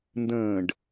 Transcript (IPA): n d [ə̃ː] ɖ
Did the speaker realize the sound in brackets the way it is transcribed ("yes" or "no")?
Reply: yes